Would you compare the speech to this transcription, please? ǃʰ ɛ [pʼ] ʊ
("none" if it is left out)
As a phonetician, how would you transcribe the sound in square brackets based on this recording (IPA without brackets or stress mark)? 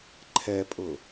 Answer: pʼ